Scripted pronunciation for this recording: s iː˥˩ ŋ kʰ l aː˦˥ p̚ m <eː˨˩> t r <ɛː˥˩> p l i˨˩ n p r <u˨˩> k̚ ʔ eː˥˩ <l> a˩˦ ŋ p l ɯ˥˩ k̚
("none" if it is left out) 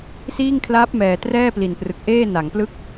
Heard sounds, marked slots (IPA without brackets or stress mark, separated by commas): ɛː˨˩, ɛː˥˩, ɯ˨˩, n